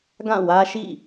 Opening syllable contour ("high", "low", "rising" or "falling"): falling